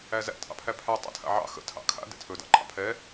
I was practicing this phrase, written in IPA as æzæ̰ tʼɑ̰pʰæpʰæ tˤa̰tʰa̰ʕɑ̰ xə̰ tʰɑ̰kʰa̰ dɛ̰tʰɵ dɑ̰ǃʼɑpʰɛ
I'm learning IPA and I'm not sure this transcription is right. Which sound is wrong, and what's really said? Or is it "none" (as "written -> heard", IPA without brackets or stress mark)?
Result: ɑ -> ɑ̰